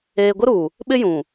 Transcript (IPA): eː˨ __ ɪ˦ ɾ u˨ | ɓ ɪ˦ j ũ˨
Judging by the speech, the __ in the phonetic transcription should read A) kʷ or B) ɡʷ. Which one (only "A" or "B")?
B